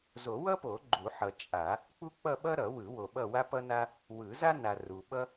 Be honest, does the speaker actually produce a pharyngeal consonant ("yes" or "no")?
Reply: yes